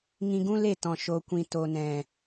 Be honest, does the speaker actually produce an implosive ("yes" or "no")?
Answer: no